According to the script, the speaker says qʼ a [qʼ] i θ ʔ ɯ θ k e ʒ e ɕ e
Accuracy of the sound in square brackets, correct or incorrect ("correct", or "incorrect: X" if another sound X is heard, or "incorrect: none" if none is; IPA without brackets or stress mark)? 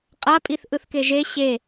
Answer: incorrect: pʼ